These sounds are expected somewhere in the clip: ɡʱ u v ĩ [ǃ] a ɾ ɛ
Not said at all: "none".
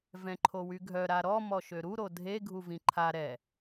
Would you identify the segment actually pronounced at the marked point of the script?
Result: ǃʰ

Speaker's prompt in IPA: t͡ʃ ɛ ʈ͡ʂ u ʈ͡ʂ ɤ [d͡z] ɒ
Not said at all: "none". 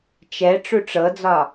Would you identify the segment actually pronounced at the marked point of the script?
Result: d͡z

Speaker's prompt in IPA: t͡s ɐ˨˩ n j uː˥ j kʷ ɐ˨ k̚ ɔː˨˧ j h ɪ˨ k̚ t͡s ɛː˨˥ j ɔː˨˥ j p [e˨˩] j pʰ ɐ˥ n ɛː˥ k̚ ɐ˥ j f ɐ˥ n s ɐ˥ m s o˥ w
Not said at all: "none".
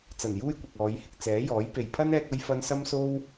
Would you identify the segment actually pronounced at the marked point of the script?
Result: e˨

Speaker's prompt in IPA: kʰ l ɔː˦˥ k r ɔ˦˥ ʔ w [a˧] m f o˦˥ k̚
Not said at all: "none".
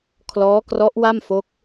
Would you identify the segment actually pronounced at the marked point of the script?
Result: a˥˩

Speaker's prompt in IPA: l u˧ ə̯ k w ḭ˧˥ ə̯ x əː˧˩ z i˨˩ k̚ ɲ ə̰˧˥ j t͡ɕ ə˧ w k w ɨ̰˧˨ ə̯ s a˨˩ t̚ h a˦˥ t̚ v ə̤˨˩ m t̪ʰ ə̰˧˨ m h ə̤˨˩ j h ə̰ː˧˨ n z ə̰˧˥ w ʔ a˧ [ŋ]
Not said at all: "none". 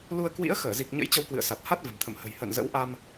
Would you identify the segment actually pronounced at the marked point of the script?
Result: m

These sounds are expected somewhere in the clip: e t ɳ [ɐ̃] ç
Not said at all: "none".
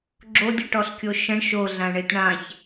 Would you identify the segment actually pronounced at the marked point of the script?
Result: ã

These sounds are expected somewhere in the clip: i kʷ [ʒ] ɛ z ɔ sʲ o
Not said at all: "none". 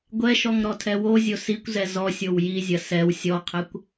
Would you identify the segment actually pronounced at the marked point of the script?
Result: z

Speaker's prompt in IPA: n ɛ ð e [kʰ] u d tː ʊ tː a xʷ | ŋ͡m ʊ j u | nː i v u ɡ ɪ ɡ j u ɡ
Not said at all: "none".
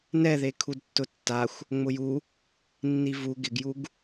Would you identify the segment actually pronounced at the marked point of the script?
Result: kʰ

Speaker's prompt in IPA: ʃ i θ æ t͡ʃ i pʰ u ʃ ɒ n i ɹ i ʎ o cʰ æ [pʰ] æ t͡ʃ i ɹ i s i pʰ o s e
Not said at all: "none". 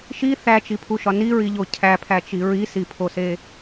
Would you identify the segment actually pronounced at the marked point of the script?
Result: pʰ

